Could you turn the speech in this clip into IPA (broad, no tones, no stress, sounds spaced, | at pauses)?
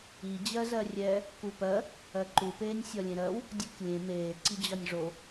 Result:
i d͡ʑ ɜ z ɜ rʲ ɛ | k u p ɜ | ɜ ǃ u p eː nʲ sʲ ɒ lʲ ẽ ɾ ɜ w | dʲ u k lʲ ẽ m eː ǀ i d͡ʑ ɒ nʲ ʐ o